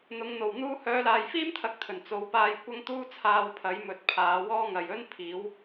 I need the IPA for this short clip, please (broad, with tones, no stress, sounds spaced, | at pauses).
n̪ ʊ˨˧ ŋ n̪ o˨˩ w n̪ uː˥ h œː˨˧ l aː˨ j f iː˥ m t̪ʰ ɐ˨˥ k̚ t̪ʰ ɵ˨˩ n t͡s o˨˧ w p aː˧ j kʷ ɐ˥ ŋ t̪ uː˥ t͡sʰ aː˧ w pʰ ɐ˨˥ j m ɵ˨ t̚ pʰ aː˨˧ w ɔː˥ ŋ ɐ˨ j ɵ˥ n pʰ iː˨˥ w